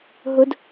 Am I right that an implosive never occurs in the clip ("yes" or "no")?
yes